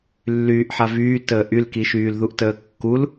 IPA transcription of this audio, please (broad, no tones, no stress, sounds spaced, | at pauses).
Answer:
lː yː ʔ ħ a v yː t əː ʔ y l k i ʃ yː l ð u ʔ t əː kː u l